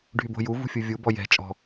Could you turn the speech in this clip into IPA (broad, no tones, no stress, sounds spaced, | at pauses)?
ɖʱ y b o̤ j u v ṳ fʲ u vʲ u b ɔ j ɛ̤ t͡ʃʼ ɔ̤